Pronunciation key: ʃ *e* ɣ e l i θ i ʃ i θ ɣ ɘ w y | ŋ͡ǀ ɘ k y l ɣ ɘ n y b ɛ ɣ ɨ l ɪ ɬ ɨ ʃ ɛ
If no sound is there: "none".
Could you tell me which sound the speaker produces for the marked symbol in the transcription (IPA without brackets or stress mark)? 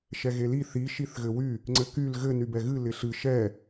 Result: ɛ